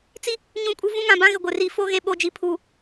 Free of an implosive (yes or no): no